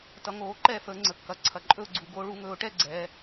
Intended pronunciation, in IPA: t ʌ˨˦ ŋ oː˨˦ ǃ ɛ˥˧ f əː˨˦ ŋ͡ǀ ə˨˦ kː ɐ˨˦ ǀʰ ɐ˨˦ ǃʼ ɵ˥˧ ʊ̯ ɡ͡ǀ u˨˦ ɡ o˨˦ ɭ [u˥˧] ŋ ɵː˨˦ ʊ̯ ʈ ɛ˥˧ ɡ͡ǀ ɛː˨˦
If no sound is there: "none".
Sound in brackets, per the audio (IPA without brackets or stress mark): u˨˦